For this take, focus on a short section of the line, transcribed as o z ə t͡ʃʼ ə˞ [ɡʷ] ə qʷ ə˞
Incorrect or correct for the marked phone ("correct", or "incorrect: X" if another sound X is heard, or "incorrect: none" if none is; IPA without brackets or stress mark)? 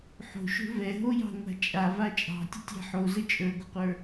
correct